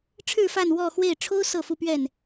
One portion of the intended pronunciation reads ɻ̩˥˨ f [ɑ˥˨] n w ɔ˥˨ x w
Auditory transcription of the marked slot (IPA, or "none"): a˥˨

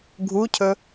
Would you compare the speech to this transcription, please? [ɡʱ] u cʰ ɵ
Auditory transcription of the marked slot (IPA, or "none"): ɡʱ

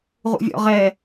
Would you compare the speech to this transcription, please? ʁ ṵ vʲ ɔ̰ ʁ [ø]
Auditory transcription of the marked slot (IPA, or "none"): ɛ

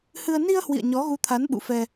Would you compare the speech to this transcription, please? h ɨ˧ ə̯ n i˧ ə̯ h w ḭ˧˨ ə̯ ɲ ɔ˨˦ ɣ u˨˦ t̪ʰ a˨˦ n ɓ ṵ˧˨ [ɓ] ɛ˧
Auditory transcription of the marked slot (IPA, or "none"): f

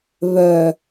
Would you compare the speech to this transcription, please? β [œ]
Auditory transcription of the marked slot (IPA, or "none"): œ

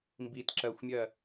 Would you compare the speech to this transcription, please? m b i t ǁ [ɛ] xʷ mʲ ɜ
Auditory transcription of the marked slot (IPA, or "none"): ɜ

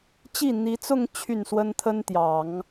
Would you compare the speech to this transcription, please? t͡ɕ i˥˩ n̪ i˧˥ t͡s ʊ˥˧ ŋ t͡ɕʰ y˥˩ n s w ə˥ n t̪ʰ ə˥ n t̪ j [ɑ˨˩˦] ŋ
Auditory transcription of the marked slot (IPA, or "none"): ɑ˨˩˦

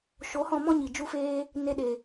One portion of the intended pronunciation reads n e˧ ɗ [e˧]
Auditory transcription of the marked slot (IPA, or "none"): e˨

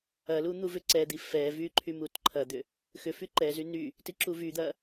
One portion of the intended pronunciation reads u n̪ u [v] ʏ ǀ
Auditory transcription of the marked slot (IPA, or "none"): v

